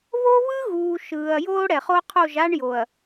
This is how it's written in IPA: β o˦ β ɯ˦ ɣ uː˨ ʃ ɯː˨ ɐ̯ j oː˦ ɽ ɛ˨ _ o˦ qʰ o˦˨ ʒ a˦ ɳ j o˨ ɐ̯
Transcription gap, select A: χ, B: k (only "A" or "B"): A